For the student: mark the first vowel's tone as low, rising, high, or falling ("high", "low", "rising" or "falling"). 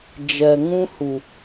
low